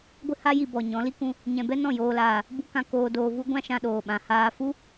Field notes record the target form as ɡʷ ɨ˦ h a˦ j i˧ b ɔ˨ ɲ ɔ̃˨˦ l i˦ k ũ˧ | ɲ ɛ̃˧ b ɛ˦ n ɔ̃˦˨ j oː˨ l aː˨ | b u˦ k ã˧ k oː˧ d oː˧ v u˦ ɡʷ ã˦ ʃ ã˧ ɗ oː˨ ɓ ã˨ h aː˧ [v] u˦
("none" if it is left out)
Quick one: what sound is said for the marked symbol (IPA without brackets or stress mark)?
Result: f